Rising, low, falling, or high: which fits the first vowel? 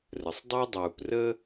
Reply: low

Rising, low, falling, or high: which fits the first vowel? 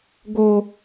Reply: high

